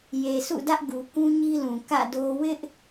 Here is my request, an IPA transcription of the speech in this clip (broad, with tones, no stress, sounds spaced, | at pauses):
j e˨ sʰ ṵ˦˨ d ä˦ ʔ ɡ u˨ k ũ˦ ɲ i˦ l ũ˨ k ä̰˦˨ d o˦ w ɪ˦ ʔ